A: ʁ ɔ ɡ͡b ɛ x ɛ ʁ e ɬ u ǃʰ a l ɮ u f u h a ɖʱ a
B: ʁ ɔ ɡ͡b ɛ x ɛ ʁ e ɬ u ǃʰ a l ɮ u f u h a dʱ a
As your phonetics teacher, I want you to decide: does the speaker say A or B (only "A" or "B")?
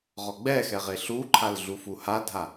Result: B